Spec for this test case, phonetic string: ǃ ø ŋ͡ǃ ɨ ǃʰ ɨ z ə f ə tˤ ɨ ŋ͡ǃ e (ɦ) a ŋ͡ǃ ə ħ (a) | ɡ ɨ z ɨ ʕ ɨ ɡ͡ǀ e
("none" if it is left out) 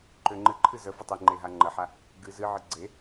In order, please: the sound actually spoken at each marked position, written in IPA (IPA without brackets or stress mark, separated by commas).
ɦ, a